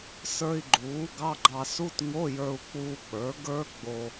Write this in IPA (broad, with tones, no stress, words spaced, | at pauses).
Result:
sə˞˧i̯ ɡ͡ǃuː˩˥ɡɑ˧˥˧ɡ͡ǃɑ˧ su˧˥˧tŋo˧˥˧jə˞˧u̯ k͡puː˧k͡pə˞˩˥ɡə˞˦˥ɡ͡bo˧